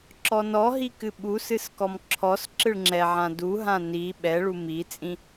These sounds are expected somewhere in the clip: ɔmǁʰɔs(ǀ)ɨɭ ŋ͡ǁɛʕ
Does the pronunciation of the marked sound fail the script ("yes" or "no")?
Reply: yes